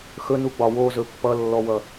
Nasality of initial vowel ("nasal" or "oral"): oral